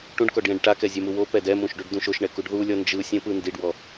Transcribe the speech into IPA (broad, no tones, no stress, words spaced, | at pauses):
ʈũɖkɔɖ jɛ̃ɖʈakɛ zʲemuwopɛ dɛmũʃ ɖuɖdũʃoʃɳɛ kuɖðulʲɔ nd͡ʒɯsʲɛ̃ pɯndiɖwɔ